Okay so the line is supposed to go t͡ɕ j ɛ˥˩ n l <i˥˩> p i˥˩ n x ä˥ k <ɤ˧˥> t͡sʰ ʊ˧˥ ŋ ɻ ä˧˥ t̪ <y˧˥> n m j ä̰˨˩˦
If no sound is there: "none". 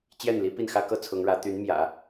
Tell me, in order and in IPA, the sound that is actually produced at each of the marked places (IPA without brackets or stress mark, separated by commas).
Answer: i˥, ɤ˥, y˧˥